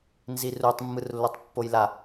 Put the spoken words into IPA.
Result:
n z i r u tˤ mː ɯ r lː o tˤ pː o j l a

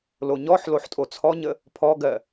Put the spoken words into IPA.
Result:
l o ɲ ɔ ħ l o ħ tʼ o t͡sʰ ɔ ɲ ə | pʰ ɔ ɡ ɜ

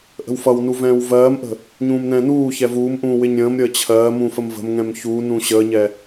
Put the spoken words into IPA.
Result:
ʔ ə̤ w f ʌ w n u v ɛ̃ː w v ɜː m ʔ ə̤ | ɲ ũː m n ɛ̃ː n uː ç ɛ v uː m ʔ ũː w ɪ ɲ ɾʲ ə̃ː m ɾʲ əː t͡ɕʰ ɜː m ũ f ə m v ə̤ m ŋ ɛ̃ m ç uː n ũ ɕ əː ɲ ɛ

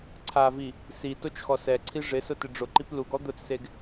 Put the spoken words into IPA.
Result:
ǀʰ a v i | s i t o t͡ʃ x ɔ s ɛ ǀʰ i ʐ ɪ s ʊ t ɪ ɖ͡ʐ ʊ ǃ i p l u ɡ ɔ d̪ ʊ t͡s s e ɡ

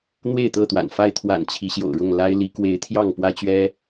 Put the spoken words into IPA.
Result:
n̪ w e˥˨ ɪ̯ t̪ ɤ˥˨ t̪ w a̰˨˩ n f a˥˨ ɪ̯ t̪ʰ w a̰˨˩ n t͡ɕʰ i˨˦ ɕ j o̰˨˩ ʊ̯ ɻ ʊ˥˨ ŋ l a˦ ɪ̯ l i˨˦ k w e˨˦ ɪ̯ t̪ʰ j ɑ˥˨ ŋ p w ä˦ t͡ɕ ɥ ɛ˦

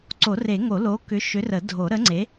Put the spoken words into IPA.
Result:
ǀ o˨˩˦ r e˨˩˦ ŋ o˨˩˦ l o˨˥ k ʏ˨˥ ʃ ʏ˨˥ r ə˨˩˦ dʱ o˨˩˦ ɾ ə˨˥ ŋ͡ǀ e˨˥

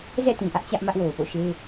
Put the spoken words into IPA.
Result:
z ɛ̰˦˨ t ĩ˨ ʔ ä˦ ʔ t͡ɕ ä˦ ʔ m ä˦ ʔ w o˨ ʊ̯ p o̰˦˨ ʃ e˦

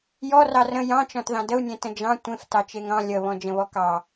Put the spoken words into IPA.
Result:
j ɔ r ɑ r ə̃ j ɑ̃ t͡ʃ ɔ̃ t ð ɑ̃ d ə u̯ nʲ ẽ t ə̃ d͡ʒ ɑ̃ tʷ ẽ f t ɑ t͡ʃ e ŋ ɑ̃ lʲ ə β ɔ̃ d͡ʒ ə̃ β ɔ k ɑ

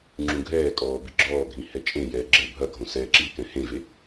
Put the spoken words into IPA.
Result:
ŋ͡ǁ ũ ɡʱ ɛː kʼ ɔː b i ɡ͡ǁ ɔː ɡʱ ĩ h ɛ t͡ʃʼ ẽ j ɛː ɡ͡ǁ ɘ bʱ ɐ ɡʱ õ s ɛː ǁ i k ɛ̃ h ẽ v e

